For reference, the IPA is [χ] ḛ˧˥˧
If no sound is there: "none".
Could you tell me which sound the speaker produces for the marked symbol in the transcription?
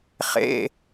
χ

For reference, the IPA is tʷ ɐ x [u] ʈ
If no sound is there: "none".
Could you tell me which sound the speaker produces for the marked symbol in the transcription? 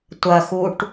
u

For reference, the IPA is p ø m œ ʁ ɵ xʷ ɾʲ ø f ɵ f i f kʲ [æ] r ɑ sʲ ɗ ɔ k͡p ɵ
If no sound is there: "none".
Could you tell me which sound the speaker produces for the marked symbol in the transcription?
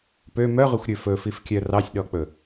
œ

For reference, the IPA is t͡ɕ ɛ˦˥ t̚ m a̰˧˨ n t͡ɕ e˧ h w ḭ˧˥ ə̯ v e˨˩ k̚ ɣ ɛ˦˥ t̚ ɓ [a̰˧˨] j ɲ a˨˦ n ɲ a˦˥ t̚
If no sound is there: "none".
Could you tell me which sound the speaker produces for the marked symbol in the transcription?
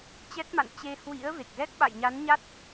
a̰˧˨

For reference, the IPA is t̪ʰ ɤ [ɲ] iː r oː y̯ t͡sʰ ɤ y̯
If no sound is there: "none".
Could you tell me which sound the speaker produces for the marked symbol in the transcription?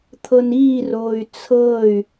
n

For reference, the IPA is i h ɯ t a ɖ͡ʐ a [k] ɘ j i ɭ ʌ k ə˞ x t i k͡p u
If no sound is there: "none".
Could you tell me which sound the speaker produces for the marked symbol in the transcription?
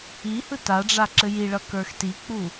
ǁ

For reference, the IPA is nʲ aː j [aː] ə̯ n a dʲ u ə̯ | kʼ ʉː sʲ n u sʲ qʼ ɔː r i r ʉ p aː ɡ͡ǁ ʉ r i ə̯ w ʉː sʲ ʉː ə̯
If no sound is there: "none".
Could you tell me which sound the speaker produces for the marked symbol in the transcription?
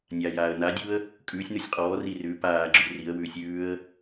aː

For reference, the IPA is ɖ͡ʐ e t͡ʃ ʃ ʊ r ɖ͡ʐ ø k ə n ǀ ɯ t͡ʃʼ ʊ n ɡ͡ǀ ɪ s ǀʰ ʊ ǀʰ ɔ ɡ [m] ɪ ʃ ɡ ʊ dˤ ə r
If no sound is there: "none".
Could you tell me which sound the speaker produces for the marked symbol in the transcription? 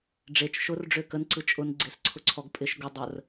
pʼ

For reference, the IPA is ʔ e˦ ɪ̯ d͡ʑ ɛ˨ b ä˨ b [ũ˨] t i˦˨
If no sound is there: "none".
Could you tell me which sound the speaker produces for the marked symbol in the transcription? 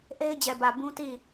ũ˦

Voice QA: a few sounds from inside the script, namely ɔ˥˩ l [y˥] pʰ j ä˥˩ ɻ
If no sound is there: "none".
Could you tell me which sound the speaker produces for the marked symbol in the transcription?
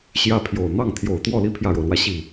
i˥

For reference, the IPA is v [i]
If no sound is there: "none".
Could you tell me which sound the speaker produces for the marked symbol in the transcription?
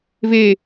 e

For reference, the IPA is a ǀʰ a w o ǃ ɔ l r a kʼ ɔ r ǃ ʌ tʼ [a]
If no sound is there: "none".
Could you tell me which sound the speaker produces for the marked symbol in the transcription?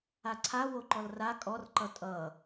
ʌ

